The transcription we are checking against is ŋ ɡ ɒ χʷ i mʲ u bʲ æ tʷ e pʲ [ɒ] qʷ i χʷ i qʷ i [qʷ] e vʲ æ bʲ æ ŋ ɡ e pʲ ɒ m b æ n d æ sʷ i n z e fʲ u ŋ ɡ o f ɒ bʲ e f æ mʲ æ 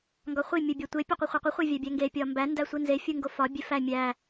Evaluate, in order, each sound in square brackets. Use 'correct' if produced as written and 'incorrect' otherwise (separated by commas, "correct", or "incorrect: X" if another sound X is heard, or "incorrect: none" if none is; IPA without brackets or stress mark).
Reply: correct, incorrect: χʷ